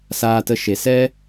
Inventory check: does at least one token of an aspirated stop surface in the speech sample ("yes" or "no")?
no